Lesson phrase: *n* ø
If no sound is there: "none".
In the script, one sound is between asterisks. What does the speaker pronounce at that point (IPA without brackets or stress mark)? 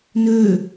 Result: n